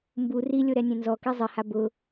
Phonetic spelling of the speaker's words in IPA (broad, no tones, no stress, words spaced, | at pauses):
mbu rilʲo ɾɛnʲẽnzɔki zˤɪha bʊ